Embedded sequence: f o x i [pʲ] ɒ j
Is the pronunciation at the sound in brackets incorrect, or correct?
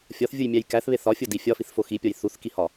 correct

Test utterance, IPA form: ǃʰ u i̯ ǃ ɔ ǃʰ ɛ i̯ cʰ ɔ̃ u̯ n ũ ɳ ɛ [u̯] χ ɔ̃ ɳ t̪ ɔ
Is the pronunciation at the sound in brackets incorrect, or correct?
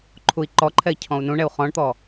correct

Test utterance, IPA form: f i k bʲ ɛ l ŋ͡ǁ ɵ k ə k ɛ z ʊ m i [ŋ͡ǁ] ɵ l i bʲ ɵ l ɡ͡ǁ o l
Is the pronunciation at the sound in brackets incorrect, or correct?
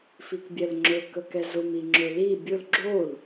correct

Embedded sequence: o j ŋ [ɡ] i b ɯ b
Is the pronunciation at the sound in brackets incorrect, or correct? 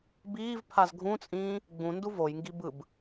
correct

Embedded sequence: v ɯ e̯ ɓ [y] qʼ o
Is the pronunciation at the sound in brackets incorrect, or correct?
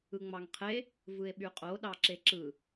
correct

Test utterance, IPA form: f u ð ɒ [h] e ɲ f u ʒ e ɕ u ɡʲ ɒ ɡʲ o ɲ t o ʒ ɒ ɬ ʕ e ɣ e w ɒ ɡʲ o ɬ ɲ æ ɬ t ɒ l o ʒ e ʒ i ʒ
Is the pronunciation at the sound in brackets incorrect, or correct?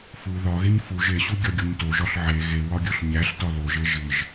incorrect: ɣ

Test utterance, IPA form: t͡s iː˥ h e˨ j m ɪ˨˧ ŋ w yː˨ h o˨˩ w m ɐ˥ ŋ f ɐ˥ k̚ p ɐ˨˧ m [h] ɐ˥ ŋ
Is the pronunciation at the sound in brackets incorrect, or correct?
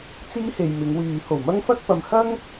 correct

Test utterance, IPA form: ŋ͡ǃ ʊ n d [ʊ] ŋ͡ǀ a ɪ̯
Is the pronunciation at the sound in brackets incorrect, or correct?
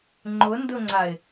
correct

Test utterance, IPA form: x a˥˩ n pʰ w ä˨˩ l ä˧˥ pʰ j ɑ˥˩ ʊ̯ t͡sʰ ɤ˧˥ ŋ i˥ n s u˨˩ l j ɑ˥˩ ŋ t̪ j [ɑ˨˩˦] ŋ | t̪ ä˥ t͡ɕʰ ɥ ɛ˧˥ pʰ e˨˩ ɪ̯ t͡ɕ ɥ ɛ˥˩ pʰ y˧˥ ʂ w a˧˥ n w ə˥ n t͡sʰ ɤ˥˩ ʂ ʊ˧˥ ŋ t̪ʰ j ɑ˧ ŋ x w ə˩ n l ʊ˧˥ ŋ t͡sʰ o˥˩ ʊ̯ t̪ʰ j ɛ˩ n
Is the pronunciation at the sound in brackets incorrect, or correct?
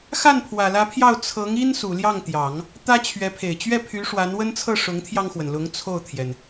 correct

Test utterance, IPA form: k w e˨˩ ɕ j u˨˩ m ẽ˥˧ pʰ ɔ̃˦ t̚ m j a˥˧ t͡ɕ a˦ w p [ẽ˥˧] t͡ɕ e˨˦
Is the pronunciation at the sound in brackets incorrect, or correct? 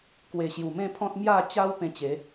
incorrect: ẽ˧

